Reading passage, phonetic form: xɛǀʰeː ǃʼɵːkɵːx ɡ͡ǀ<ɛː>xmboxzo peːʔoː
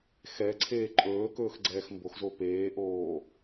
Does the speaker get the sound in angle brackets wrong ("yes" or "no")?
no